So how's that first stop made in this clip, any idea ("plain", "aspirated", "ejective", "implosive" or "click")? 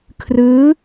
aspirated